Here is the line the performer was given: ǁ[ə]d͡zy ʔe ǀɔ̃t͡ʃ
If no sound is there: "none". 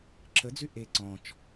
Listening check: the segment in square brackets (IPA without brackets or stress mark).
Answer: ə